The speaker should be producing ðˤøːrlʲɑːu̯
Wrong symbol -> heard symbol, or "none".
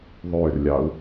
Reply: none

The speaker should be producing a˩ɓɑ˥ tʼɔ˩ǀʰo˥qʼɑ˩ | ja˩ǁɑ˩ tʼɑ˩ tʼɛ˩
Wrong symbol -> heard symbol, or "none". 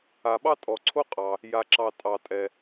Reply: none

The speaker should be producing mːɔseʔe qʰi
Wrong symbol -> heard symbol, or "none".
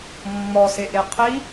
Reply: none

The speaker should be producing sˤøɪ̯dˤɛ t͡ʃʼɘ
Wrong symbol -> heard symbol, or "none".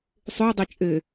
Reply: none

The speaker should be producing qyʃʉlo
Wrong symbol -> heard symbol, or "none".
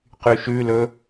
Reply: o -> ɵ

